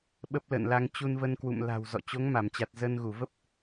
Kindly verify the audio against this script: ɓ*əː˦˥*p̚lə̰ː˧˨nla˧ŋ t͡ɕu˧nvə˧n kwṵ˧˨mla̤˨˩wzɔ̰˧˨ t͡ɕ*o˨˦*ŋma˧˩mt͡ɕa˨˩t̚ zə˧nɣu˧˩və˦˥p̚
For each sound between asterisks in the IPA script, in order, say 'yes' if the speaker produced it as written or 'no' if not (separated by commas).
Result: no, yes